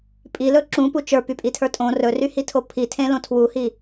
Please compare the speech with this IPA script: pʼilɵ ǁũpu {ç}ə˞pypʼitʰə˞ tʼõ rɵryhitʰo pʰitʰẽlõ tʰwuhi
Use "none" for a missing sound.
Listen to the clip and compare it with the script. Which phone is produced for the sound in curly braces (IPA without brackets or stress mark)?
t͡ʃ